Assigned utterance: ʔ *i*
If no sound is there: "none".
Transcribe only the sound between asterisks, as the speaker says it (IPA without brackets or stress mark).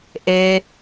e